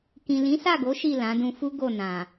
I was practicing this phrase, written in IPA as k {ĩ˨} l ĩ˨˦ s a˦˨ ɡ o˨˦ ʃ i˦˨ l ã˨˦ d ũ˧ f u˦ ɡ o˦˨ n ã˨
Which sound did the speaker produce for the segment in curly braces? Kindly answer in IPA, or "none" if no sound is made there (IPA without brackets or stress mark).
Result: ĩ˨